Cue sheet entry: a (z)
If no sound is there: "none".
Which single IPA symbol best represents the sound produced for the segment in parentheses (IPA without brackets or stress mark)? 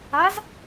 z